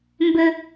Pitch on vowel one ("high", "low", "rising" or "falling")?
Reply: high